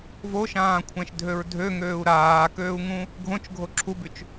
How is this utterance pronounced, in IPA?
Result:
v o ʃ ãː kʷʰ ɛ̃ ʃ dʱ ø ɹ dʱ ø ŋ øː u̯ ɾ aː k øː u̯ ŋ ũ | ɡʱ õ t͡ʃ ɡʱ o ǁʰ u b y t͡ʃ

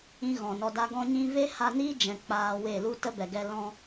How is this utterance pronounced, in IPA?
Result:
ĩ˦ ɣ ɔ̃˨ n ɔ˧ d a˦ ɡ ɔ̃˧ ɲ ĩ˧ v e˦ h a˧ n iː˦ d͡ʒ ɛ̃˨ k͡p aː˧ w e˦˨ l u˧ t ə˦ b ɛ˨ ɡ ɛ˧ l ɔ̃˧

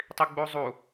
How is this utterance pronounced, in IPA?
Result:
tˤ i ɡ͡b u zˤ u

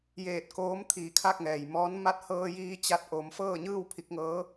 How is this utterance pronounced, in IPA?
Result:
j eː˧˩ t̚ k oː˧˥ m t̪ʰ iː˧˩ kʰ a˥˨ k̚ ŋ ɛː˩ j m ɔː˧˥ n m a˧˥ t̚ h ɤː˧ j iː˧ t͡ɕ a˧ t̚ ʔ oː˩˧ m f ɤː˥˨ ɲ ɯː˥˨ w pʰ i˧ k̚ ŋ ɤː˧˥

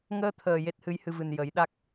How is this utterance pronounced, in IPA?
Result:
ŋ əː˧ t̪ʰ əː˨˩ j e˦˥ t̚ h ɨ˧˥ j h ɨ˧ v ɨ˨˩ n j ə˨˩˦ j ɗ a˦˥ k̚

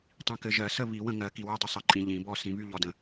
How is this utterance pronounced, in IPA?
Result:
tˤ ĩ˨ k ɘ˨ ʒ ɜ˨˩˦ s ə˥˨ β i˨˩˦ w ə̃˥˨ ŋ ɜ˨˩˦ k i˨ w ɜ˥˨ dˤ ə˥˨ sˤ ɘ˨˩˦ ǃʼ ĩ˨ ʎ ĩ˨˩˦ b ɔ˥˨ s ĩ˨˩˦ β y˥˨ ʎ ɔ˨ d ə̃˨

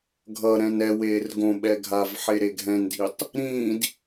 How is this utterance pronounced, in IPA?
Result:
ɡʱ ʌ ɾ ɛ̃ n ɛ w eː r ɡ õ ɓ ɛ ɡʱ a v ħ e ɾ e ɡʱ ɛ̃ n dʱ i tˤ | ɾ ĩ d

